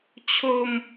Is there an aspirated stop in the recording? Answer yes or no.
yes